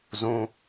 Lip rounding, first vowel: rounded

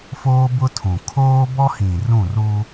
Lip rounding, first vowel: rounded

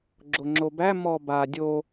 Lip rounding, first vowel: rounded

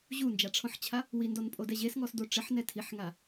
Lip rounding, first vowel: rounded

